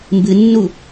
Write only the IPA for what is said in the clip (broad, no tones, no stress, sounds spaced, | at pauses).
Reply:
m b ɨ nː u